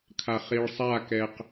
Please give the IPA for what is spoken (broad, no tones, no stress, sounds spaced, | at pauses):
kʰ a χ i ɭ sˤ a k ɛ q